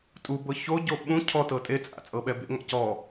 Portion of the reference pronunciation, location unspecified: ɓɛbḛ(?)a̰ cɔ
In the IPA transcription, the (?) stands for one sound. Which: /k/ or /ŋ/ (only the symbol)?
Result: ŋ